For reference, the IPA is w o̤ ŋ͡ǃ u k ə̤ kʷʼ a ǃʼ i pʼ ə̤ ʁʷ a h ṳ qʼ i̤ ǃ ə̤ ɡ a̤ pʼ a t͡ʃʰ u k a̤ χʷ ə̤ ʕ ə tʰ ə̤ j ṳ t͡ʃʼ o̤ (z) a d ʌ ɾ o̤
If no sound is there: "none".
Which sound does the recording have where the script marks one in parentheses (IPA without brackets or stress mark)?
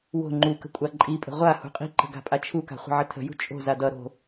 z